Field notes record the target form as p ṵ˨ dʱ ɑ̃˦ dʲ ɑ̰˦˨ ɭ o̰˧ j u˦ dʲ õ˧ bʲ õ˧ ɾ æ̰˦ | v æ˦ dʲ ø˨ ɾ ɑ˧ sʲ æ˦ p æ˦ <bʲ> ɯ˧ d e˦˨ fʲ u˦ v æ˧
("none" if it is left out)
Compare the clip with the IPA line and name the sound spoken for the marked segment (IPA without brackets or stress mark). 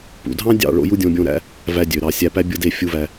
bʲ